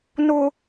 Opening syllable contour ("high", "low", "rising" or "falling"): high